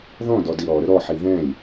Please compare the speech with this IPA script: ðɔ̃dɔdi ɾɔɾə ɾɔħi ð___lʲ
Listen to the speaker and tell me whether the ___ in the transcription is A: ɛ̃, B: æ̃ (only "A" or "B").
A